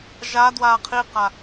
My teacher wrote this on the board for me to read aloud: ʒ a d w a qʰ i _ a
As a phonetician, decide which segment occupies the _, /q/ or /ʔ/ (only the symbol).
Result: q